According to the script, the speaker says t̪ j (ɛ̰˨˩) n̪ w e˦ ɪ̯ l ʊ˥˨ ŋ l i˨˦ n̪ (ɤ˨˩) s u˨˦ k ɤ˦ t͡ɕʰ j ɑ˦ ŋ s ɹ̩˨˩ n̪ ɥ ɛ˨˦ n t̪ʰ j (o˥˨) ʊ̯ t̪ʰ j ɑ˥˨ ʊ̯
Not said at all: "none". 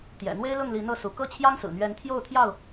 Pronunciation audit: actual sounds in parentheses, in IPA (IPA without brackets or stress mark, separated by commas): ɛ̰˨˩, ɤ˥˨, o˥˨